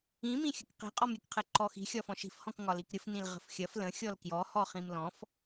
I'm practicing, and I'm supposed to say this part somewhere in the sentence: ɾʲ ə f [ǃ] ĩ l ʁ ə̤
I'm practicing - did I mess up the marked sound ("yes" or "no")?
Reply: yes